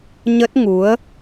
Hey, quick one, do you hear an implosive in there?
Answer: no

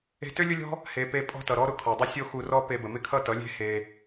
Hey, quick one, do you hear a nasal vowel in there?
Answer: no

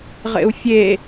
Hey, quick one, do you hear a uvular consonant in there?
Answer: yes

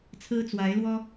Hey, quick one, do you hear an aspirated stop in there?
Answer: yes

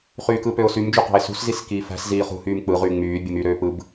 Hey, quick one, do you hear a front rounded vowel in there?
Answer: yes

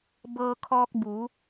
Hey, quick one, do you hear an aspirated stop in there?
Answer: yes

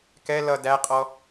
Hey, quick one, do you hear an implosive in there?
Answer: no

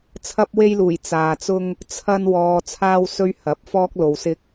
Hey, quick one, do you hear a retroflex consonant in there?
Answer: no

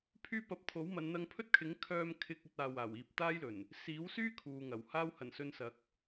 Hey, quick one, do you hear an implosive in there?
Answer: no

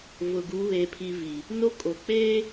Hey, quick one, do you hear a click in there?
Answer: no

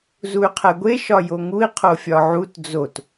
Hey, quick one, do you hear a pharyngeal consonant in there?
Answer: yes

